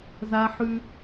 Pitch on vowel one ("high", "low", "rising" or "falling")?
high